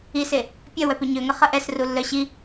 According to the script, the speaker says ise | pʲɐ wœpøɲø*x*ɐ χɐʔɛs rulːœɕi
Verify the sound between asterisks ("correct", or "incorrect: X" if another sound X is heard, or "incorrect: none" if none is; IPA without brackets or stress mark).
incorrect: ŋ